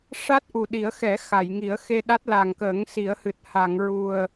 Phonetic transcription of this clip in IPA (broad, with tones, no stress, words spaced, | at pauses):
ʂa˦˥t̚ʔu˨˩ɗi˨˩˦ə̯xɛ˨˩˦ xa˨˩˨jŋi˨˩˦ə̯xe˧ɗa˦˥t̚ la˨˩ŋkəː˨˩˦ŋsi˨˩˦ə̯hɨ˨˩t̚ ha˨˩˨ŋɹu˨˩ə̯